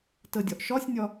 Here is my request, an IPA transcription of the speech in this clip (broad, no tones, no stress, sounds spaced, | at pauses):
t ə dʲ ɒ ʔ ʃ ɒ sʲ nʲ ɒ